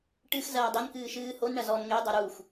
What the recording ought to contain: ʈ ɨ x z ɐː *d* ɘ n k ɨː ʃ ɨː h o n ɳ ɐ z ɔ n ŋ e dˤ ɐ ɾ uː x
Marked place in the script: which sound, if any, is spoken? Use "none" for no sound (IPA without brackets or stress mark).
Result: dˤ